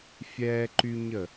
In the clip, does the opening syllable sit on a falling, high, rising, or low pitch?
high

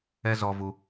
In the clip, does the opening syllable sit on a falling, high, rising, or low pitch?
high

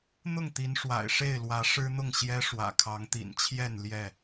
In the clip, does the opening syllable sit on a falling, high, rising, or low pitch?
falling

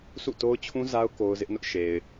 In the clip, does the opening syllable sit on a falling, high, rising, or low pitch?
falling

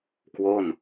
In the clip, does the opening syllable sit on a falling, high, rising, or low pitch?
falling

